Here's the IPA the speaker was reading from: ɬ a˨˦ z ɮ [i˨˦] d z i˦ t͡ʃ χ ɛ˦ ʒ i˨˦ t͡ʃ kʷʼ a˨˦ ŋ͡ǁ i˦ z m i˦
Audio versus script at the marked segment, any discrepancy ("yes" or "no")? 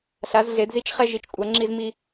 yes